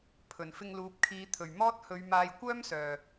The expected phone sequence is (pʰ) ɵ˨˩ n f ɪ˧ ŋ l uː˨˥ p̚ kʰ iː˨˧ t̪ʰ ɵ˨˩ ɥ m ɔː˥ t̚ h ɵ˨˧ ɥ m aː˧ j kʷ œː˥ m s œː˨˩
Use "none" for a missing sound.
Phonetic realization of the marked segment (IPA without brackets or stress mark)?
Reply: pʰ